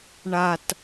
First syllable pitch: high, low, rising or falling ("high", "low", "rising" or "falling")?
high